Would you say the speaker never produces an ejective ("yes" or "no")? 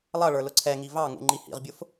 yes